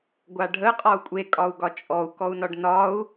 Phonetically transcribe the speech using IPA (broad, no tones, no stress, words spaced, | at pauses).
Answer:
ɡʷaɖʱə qʼɒu̯kʷʼe kʼɒu̯ɡɒt͡ʃʼɔu̯ kɔu̯nɒɖnɒu̯